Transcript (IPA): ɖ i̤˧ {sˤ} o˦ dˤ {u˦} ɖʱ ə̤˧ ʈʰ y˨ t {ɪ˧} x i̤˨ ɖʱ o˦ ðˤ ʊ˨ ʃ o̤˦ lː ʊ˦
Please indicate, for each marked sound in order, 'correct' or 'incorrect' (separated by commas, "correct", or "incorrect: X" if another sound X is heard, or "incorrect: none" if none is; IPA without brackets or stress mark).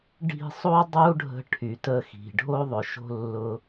correct, correct, incorrect: ə˧